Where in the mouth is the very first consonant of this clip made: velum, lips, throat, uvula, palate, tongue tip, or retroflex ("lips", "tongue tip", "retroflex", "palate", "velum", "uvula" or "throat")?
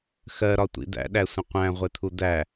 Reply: velum